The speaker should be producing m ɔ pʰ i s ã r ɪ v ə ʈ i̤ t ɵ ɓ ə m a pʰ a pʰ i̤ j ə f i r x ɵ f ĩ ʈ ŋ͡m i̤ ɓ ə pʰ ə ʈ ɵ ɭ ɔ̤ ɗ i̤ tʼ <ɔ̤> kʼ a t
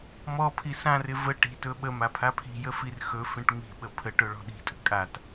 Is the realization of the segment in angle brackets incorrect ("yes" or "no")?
yes